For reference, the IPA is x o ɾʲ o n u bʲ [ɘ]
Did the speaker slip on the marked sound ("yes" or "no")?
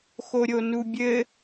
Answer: no